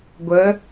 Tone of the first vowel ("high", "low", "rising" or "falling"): rising